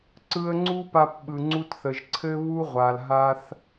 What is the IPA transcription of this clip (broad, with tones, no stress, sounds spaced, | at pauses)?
ǀ ɯ˧ ə̯ ŋ͡ǀ u˥ p a˧ p ɓ ɯ˩ ŋ͡ǀ u˧ t θ ə˩ ʒ ǀʰ ɘ˥ β u˥ ʁʷ a˩ l ɦ a˧ θ